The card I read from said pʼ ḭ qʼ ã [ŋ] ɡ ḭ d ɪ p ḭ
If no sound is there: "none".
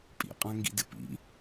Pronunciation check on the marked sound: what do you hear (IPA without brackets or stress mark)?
ŋ